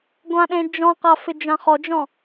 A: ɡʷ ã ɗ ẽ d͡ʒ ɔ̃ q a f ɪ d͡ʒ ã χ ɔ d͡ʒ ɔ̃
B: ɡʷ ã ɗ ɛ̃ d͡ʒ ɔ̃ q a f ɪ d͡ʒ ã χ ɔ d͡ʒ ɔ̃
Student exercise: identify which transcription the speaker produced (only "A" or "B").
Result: A